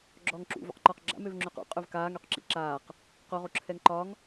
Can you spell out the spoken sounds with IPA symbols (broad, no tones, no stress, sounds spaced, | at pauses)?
ɡ͡ǁ ɔː ŋ ǁ ṵ v ṵ q ǃ ɒ q ɡ͡ǁ a̰ m ø v ŋ͡ǁ ø q ṵ qʼ ø v k aː ŋ ø q ǁ ḭ ǁ aː q | q o ʁ o ǁʰ ɛ ŋ ǃ ɒ ŋ